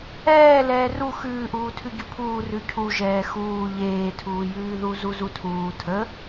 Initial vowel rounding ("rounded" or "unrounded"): unrounded